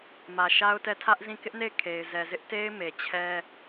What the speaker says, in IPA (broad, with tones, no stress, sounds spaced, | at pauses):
m ä˨ ʃ a˦ ʊ̯ t ɛ˦˨ tʰ ä˦ ʔ z ĩ˦˨ k ɪ˦ ʔ n e˦˨ ɪ̯ kʰ e˨ ɪ̯ z ɛ˨ z ɪ˦ ʔ t e˦ ɪ̯ m e˨ t͡ɕʰ ɛ˦